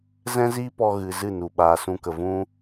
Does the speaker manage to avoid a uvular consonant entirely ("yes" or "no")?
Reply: yes